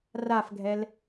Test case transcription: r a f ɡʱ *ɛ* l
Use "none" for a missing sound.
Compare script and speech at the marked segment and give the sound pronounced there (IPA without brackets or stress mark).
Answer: ɛ